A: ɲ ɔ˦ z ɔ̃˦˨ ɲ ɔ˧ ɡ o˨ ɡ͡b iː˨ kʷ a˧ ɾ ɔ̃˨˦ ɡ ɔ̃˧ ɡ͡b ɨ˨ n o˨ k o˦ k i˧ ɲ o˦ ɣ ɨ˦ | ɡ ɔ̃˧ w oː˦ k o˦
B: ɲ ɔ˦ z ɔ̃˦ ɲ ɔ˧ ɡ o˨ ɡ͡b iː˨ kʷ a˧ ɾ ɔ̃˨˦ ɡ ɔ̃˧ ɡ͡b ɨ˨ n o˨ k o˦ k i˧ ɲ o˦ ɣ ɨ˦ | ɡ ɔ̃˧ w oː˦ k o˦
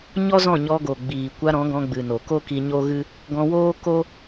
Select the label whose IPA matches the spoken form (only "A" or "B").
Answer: A